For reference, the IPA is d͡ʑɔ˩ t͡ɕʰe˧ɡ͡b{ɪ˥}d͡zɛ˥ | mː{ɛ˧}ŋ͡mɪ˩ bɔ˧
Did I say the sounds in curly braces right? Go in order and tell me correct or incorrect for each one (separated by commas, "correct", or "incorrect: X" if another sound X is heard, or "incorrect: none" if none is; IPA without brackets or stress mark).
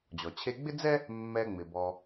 correct, correct